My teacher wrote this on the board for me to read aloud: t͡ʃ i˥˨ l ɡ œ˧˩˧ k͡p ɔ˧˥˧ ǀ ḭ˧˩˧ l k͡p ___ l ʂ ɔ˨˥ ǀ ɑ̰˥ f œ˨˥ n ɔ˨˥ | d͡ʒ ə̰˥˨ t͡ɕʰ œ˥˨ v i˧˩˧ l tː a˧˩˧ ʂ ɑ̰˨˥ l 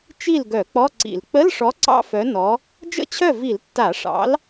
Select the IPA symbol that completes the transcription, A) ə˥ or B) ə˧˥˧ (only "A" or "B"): B